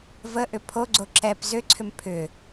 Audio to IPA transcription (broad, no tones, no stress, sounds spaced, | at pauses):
v ə ʔ ʏ pʰ o ɡ͡ǀ o ǁ ɛ p z ʏ ǀʰ ʏ m pʰ ʏ